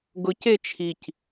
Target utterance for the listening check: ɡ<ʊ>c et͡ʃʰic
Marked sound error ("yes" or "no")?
no